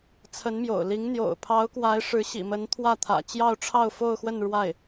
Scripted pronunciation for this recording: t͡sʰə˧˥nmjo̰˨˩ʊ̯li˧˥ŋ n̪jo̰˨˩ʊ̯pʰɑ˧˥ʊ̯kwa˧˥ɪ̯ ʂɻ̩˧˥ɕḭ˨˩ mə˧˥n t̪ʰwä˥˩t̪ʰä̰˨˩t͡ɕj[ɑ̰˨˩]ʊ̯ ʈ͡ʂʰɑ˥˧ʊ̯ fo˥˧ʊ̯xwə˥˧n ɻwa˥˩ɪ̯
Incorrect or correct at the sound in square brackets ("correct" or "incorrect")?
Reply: incorrect